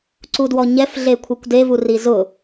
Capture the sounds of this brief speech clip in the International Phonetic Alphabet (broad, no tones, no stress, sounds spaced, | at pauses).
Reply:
ǀ u d w ɔ ɲ ɛ f ɮ e kʷʰ i kʷ d e v u r i z ʊ